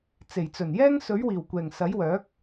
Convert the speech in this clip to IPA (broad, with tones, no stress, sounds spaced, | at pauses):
t͡s e˨˩ j t͡s ɵ˨˩ n j ɛː˥ ŋ s ɵ˨˥ ɥ w iː˨˩ w kʷ ɛː˨˩ ŋ s ɐ˨˥ j w œː˨˥ k̚